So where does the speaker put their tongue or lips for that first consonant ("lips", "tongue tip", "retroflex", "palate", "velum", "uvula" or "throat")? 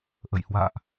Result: throat